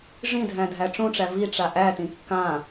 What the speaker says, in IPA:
ʐ ĩ dʱ æ̃ dʱ æ ʈ͡ʂ ũ ʈ͡ʂ æ v i ʈ͡ʂ a ʔ æ t ĩ kː ã

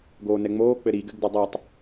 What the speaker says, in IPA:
ɡ oː n ɛ ŋ͡m oː k͡p ɘ ɾ i ɡ ɘ ɡ d ɘ dˤ ɛ tˤ

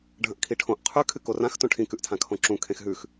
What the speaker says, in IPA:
ɖʱ ɐ̃ ʔ kʰ i ʈʰ õ ʔ qʰ ʉ kʰ ɨ k o r ã x t õ ʈʰ ĩ k ʉ ʔ tʰ ã kʰ õ ǁ ũ kʰ ẽ x ɦ ʉ x

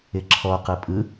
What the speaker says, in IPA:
ɪ ǁʰ ɔ q ɯ pʼ ɯ

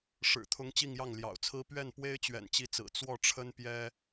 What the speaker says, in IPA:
ʂ ɻ̩˨˩ t̪ʰ ʊ˧˥ ŋ t͡ɕ i˥˧ ŋ j ɑ˥˩ ŋ l j ɑ̰˨˩ ʊ̯ t͡sʰ ɹ̩˥ p ɥ ɛ˥˩ n p w e˥ ɪ̯ t͡ɕ ɥ ɛ̰˨˩ n t͡ɕ i˧˥ t͡s ɹ̩˨˩ t͡s w ɔ˥˩ ʈ͡ʂʰ ə˥ n p j ɛ˥

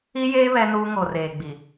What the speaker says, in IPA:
i˦ j eː˦ β ɛ˦ n uː˦ ŋ o˨ r eː˨ ɡ͡b i˨

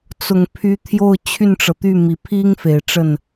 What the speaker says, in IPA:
t͡s ʊ˨˩ ŋ pʰ y˧˥ t̪ʰ j o˥˧ ʊ̯ t͡ɕʰ y˥˩ n ʈ͡ʂ ɤ˩ t̪ y˥˩ m i˨˩ pʰ i˥ ŋ f e˨˩ ɪ̯ ʈ͡ʂ ə˥˩ n

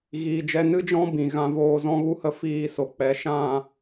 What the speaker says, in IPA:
ɣ iː˨ d͡ʒ ɛ˧ n ɨ˦ d͡ʒ ɔ̃˦ b ĩ˨ ɣ ã˧ v oː˧ z ɔ̃˧ ɣ u˧ h ə˧ f iː˧ s o˨ k͡p ɛ˨ ʃ ã˦˨

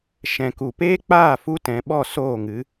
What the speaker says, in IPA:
ʃ ɛ̃˨ k u˨ p eː˦ k͡p aː˦˨ f u˦ t ɛ̃˨˦ ɓ ɔ˦˨ s oː˦˨ ŋ ɨ˨˦

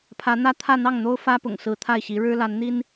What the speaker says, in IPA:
pʰ ä˧˥ n̪ ä˥ t̪ʰ ä˥˧ n̪ ɑ˥˩ ŋ n̪ o˥ ʊ̯ f ä˥ p ʊ̰˨˩ ŋ s ɹ̩˧˥ t̪ʰ a˥˩ ɪ̯ ɕ i˧˥ ɻ ɻ̩˥ l a˧˥ n n̪ i˥ n

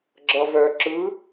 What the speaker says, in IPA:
ɡ͡ǁ ʌ v œ ǁ ɯ

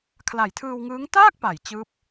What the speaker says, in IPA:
kʰ l a˨˩ j tʰ ɯː˧ w ŋ ɯː˦˥ ŋ t aː˥˩ k̚ p a˩˦ j t͡ɕ ɯː˦˥ p̚

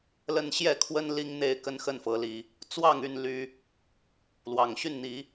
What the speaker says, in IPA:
l ə˦ n ɕ j ɛ˥˨ kʰ w ə˦ n l i˦ ŋ n̪ e˥˨ ɪ̯ k ə˦ n x ə˥˨ n f ɤ˨˦ l i˨˦ | t͡s w ɑ˥˨ ŋ y˥˨ n l y˦ | l w ɑ˨˩ ŋ ɕ y˥˨ n n̪ i˨˦

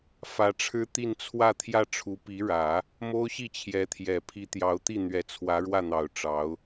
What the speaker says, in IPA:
f ä˧˥ ʈ͡ʂʰ ɻ̩˥ t̪ i˥˧ n t͡sʰ w ä˥˧ t̪ʰ j ä˥˩ ʈ͡ʂʰ u˧˥ p i˧˥ ɻ ä˨˩˦ | m o˥ ʊ̯ ɕ i˥˩ t͡ɕʰ j ɛ˧˥ t̪ʰ j ɛ˨˩ pʰ i˧˥ t̪ j ɑ˧˥ ʊ̯ t̪ i˥˩ n̪ ɥ ɛ˧˥ t͡sʰ w ä˧˥ ɻ w ä˥˩ n̪ ɑ˨˩ ʊ̯ ʈ͡ʂ ɑ˧˥ ʊ̯

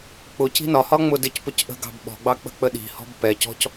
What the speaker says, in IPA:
k͡p ʊ c i̤ n ɒ h ɒ ŋ͡m ʊ d ɪ c p ʊ c ʔ ə̤ ɡ ɑ̤ b ɓ ɔ̤ ɡ͡b ɑ k͡p ə̤ k͡p ə ɗ i̤ h ɔ̤ b p ɛ c ɔ̤ c

